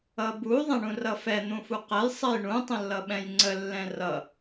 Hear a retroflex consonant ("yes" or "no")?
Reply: yes